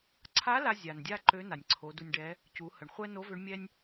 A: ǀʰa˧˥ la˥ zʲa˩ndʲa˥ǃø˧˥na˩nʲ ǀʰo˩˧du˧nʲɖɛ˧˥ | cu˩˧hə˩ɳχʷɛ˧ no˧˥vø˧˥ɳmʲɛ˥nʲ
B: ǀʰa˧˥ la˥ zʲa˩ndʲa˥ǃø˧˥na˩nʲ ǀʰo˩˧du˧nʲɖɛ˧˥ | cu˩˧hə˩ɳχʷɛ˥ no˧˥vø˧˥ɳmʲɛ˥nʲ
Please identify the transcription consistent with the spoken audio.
B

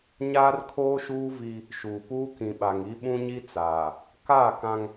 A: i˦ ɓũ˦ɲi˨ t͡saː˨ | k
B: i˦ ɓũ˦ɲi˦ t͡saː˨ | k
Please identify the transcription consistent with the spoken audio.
B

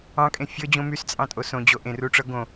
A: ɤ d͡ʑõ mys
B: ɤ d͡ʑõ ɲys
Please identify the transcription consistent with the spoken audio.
A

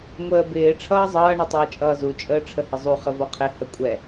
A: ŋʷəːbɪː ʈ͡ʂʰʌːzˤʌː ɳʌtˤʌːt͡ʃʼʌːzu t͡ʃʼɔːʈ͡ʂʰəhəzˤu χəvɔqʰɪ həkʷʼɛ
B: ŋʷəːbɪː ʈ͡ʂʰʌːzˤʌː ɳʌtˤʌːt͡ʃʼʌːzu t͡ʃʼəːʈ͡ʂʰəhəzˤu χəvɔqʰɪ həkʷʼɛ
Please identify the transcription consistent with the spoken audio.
B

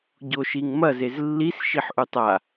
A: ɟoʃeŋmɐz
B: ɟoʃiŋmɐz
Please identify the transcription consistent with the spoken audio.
B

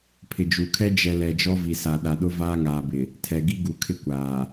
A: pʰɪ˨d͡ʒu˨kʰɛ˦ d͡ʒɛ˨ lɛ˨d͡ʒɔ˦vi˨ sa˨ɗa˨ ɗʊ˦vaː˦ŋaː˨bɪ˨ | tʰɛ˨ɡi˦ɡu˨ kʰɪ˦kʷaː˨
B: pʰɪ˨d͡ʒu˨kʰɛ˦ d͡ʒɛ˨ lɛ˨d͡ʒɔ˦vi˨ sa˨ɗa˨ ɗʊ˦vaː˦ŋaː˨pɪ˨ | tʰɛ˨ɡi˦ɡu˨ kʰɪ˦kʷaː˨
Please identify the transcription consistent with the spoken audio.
A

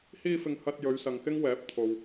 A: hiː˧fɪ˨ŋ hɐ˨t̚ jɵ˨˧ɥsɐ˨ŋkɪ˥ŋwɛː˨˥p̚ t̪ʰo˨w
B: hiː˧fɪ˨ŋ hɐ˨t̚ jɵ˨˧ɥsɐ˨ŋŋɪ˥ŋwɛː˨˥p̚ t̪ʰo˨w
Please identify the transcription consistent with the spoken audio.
A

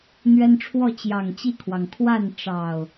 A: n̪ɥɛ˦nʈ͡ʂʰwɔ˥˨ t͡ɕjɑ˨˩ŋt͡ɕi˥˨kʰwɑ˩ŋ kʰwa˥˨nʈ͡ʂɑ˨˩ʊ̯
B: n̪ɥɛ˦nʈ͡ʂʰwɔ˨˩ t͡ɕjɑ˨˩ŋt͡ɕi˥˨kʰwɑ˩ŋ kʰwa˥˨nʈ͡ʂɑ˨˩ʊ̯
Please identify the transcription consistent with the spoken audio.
A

